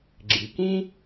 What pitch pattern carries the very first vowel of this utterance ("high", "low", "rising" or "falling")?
low